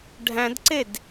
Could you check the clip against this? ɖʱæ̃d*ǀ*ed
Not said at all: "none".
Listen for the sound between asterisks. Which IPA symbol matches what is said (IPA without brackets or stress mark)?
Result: ǀ